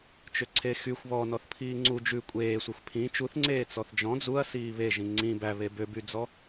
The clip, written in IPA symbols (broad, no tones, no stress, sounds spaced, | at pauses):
t͡ʃ ø ǀʰ e x y xʷ β ɔ n ɔ θ pʰ iː ŋ͡ǀ u d͡ʒ ʉ kʷʼ eː sʷ æ xʷ pʰ ĩ t͡ʃ u θ ŋ͡ǀ eː t͡s ɔ θ d͡ʒ ɔ̃ d͡z u ɐ̯ s iː β e ʒ ĩ ŋ͡ǀ ĩ b æ β e b ø b y d͡z ɔ